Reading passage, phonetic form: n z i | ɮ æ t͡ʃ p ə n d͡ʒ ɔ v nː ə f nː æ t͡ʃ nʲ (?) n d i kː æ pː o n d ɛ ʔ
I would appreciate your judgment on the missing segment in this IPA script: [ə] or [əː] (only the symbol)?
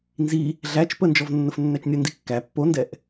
ə